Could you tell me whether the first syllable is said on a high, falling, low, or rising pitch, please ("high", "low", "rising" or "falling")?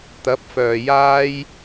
rising